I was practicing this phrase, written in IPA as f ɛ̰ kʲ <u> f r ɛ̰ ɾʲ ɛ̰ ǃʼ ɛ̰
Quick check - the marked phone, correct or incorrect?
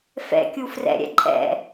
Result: correct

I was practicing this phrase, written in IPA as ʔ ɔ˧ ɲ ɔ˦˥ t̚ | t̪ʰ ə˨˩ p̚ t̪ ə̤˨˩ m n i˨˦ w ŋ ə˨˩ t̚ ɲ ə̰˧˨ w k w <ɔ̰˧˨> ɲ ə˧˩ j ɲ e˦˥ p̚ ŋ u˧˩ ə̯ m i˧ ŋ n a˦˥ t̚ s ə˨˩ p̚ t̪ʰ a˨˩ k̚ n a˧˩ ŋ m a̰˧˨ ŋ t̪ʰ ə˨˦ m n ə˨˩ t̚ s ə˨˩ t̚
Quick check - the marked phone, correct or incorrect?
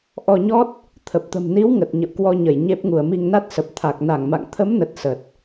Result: incorrect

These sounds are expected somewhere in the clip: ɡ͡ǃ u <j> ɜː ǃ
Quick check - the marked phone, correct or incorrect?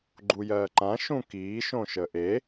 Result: correct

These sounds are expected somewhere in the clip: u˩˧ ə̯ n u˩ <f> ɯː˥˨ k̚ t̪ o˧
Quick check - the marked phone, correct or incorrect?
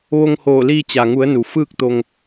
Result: correct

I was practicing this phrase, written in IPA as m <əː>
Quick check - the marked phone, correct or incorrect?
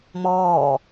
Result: incorrect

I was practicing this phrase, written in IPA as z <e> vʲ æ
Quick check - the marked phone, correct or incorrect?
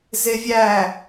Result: correct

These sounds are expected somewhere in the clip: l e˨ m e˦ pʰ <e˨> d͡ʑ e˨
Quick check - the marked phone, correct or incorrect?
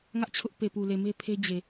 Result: incorrect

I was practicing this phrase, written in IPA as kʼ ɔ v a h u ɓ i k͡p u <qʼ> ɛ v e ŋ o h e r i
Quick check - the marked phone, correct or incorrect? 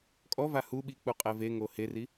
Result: correct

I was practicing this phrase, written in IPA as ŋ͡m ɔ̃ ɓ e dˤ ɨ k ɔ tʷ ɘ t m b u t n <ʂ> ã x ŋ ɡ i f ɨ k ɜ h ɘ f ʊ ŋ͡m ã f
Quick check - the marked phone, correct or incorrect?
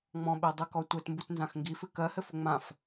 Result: incorrect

